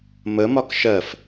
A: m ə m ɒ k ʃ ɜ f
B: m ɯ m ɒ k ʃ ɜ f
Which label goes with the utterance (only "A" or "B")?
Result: A